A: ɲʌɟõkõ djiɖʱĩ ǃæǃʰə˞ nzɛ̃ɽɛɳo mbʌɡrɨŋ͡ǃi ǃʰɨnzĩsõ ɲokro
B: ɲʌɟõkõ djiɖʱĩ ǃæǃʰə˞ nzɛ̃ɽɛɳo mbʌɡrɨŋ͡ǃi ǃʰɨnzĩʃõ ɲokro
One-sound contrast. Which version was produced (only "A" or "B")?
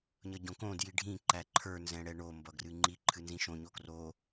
B